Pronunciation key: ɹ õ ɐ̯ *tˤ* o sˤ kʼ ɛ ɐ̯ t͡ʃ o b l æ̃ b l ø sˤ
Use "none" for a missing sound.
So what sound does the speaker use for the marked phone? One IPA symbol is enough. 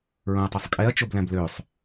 tˤ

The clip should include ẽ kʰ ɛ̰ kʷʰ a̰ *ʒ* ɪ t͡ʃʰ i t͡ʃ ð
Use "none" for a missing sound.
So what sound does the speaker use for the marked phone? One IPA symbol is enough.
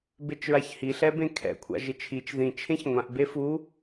ʒ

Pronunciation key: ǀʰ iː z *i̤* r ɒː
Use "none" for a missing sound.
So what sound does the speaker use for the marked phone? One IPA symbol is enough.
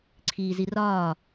i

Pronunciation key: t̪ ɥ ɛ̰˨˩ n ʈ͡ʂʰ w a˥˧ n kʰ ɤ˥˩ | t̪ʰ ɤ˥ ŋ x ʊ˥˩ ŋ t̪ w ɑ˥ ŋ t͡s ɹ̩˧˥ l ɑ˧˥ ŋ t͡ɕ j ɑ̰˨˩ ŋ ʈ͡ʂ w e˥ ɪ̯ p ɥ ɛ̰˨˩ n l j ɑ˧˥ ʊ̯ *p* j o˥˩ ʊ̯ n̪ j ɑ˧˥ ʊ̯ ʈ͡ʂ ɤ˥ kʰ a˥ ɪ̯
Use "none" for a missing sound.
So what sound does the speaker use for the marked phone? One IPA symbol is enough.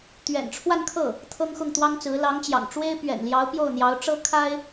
p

